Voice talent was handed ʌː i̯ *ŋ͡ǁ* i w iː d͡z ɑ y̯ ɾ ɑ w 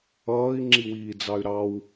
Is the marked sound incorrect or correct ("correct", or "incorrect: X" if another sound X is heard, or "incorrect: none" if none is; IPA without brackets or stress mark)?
correct